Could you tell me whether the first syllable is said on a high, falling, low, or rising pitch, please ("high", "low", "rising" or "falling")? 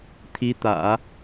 rising